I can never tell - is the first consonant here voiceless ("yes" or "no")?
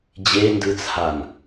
no